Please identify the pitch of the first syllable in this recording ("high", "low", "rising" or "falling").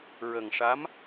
low